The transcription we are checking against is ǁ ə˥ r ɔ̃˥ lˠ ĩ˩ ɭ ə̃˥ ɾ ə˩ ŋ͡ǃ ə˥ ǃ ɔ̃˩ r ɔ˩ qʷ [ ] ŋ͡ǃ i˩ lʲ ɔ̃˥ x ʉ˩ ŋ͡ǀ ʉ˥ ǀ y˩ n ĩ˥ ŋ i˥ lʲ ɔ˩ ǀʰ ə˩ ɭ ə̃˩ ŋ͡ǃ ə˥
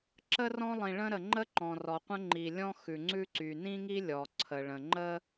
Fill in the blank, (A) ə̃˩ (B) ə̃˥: B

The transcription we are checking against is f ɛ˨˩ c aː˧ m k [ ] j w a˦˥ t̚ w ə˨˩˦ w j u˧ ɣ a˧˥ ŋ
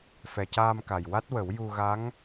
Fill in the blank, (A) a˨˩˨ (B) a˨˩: B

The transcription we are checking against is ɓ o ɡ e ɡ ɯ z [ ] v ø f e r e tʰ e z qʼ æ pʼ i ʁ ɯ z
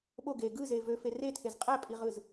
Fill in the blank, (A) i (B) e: B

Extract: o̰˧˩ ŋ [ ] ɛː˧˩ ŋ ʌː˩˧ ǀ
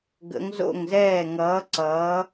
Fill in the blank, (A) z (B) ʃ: A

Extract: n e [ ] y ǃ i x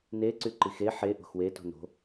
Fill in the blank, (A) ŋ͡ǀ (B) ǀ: B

